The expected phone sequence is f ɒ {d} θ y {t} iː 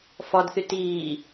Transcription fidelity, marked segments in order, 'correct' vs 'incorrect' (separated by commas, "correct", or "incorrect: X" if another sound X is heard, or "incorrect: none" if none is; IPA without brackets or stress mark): correct, correct